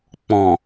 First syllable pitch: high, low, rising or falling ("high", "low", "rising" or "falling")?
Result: low